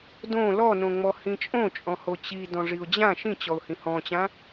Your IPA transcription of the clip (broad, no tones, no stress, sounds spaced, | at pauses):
d õ l ɔ n õ ŋ͡m ɔ h ĩ t͡ʃʼ õ t͡ʃʼ ɔ̃ h o t͡ɕ i d ɔ̃ ʐ i ʊ̯ d͡ʑ ã ʃ ĩ t͡ɕ ɔ ʊ̯ h ĩ h ɔ̃ t͡ɕ ã